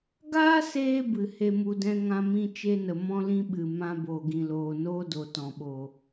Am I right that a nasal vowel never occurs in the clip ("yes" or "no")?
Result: no